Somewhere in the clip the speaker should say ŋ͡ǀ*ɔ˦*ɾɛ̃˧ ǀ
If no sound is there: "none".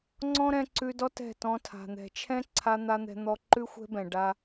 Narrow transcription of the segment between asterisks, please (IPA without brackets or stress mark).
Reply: ɔ̃˦